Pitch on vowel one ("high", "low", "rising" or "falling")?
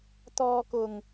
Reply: low